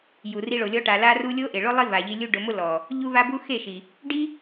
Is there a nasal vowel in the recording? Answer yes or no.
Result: no